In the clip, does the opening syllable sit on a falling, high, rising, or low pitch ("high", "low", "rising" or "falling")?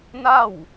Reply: falling